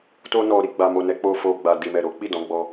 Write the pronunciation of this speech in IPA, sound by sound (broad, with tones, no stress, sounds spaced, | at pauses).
t o˧ n ɔ˨ ɾ i˧ ɡ͡b a˨ m o˨ n ɛ˨˦ k͡p o˧ f o˨ ɡ͡b a˨ d i˨ m ɛ˨ ɾ o˨˦ k͡p i˦˨ d ɔ̃˨˦ ɡ͡b ɔ˧